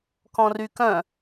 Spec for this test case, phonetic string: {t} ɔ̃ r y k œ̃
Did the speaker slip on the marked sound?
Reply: yes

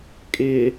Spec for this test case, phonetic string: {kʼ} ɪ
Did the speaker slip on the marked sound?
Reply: no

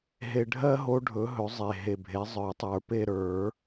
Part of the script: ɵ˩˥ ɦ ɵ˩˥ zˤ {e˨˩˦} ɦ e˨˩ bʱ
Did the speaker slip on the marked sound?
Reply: yes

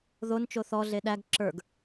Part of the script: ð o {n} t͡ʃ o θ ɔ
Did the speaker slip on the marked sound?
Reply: no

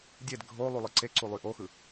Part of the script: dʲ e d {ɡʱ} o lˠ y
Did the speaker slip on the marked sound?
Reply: no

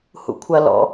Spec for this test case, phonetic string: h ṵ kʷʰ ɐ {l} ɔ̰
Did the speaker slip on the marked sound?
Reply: no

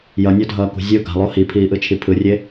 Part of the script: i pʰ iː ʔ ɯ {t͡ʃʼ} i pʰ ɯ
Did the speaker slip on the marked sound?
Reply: yes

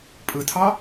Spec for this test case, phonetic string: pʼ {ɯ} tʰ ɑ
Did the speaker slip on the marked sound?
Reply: no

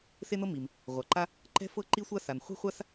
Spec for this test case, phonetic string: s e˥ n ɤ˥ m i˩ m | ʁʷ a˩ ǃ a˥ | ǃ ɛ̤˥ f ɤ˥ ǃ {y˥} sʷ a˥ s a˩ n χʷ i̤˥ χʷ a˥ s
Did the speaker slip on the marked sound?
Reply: yes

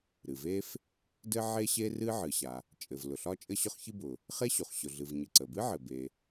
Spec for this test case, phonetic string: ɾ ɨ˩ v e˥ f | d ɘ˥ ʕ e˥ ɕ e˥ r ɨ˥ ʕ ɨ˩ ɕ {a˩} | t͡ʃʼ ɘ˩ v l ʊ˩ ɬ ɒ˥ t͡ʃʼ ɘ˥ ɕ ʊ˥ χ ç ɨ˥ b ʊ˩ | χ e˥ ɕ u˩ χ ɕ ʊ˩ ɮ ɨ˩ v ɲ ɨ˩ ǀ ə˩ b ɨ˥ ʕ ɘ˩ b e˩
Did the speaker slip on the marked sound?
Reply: no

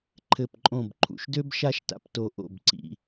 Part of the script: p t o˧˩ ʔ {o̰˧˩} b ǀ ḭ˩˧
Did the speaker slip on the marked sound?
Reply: no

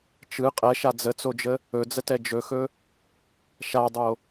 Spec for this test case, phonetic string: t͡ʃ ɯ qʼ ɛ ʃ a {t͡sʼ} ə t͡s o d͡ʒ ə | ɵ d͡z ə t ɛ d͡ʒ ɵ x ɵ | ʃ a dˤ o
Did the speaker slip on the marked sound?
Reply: yes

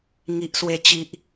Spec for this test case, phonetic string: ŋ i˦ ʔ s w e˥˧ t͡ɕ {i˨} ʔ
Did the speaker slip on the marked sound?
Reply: yes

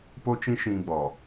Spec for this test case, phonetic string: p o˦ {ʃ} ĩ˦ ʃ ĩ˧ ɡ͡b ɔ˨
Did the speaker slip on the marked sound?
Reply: yes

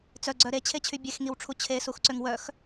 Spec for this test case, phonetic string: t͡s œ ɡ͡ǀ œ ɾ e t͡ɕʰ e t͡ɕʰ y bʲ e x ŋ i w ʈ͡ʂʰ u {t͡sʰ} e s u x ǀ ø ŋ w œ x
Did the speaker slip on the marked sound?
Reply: yes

